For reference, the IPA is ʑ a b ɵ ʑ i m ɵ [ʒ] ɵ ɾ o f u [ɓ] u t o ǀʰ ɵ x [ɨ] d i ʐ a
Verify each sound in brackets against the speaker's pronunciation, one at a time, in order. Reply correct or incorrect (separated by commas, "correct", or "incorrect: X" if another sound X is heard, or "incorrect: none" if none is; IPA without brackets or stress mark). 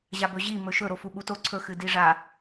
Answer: incorrect: ʃ, correct, correct